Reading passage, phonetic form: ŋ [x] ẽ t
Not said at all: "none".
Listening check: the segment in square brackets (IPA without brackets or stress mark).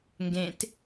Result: ɡ